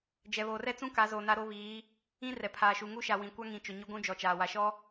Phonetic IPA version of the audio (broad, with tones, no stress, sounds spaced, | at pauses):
d͡ʒ ɛ˨ β oː˨ r ɛ˦ t͡s ũ˦ k a˨˦ z oː˨ n a˦ ɾ o˦ β iː˨˦ | ĩ˦ r ɛ˨ pʰ aː˨ ʃ u˨ ŋ u˦ ʃ a˨ w ĩ˨ kʷ a˦ ŋ ĩ˨ t͡ʃ ʊ˨ ɲ ʊ˦ ɡʷ ũ˦ d͡ʒ ɔ˨ t͡ʃ aː˨ w a˨ ʃ ɔ˦